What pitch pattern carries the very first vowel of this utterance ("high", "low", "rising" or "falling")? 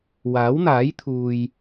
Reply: rising